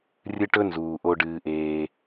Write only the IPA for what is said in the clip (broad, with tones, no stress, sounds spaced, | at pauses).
rʲ ɨ˦ ʈ ɵ˥ n z uː˩ ʔ o˨ ɖ ɨː˩ ʔ eː˩